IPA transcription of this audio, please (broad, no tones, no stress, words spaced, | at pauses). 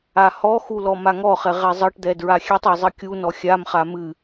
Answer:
ahɔxu lɔmaŋɔχɛ ʁɛzˤɤʈd̪ɛ dɹaxʲɛtˤa zˤɨkʲunɔ xʲamχa mɨ